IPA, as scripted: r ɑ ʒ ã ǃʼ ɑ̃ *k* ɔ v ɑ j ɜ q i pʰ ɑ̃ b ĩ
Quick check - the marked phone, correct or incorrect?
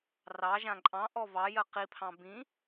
incorrect